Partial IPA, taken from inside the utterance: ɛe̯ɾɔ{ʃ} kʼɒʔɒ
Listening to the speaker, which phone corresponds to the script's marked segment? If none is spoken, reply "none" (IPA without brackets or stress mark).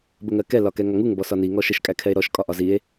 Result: ʃ